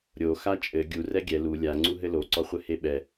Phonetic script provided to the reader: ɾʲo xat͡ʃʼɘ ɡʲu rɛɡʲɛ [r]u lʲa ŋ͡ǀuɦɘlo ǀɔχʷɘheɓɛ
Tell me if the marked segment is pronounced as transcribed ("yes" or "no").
no